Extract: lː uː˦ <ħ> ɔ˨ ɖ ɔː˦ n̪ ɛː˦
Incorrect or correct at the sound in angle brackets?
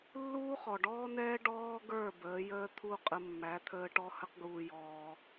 incorrect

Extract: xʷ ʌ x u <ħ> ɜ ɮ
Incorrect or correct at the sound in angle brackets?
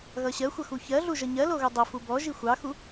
incorrect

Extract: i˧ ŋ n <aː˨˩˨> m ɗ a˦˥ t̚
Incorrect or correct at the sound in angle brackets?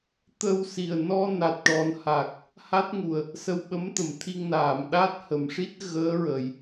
correct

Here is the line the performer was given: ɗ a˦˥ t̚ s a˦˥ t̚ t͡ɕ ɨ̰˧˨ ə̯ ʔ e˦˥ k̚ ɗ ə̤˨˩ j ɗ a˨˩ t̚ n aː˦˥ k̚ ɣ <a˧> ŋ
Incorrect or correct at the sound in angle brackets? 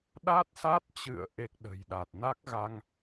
correct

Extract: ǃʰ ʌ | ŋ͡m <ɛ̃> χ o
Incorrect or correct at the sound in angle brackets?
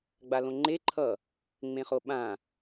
incorrect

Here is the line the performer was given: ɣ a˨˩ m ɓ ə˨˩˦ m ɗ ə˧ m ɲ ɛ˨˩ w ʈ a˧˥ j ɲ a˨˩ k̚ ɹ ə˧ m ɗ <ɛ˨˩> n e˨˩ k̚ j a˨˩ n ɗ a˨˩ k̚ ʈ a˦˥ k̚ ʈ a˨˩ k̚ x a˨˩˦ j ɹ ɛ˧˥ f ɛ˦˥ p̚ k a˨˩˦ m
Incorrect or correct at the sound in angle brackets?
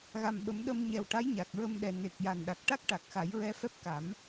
correct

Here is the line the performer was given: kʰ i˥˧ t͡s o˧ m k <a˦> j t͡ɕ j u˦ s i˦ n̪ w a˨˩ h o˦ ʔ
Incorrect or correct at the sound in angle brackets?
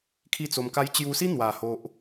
correct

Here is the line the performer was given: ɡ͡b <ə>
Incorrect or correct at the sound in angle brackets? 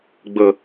correct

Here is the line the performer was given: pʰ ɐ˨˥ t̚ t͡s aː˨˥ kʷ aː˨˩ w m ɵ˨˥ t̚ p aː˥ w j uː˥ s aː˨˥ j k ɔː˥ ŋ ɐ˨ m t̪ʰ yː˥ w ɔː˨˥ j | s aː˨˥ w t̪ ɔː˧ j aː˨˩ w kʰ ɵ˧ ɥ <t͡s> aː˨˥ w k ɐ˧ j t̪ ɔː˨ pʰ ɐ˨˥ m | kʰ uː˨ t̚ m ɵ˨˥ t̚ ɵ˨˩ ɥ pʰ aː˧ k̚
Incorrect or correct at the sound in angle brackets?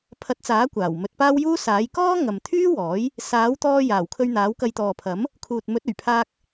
incorrect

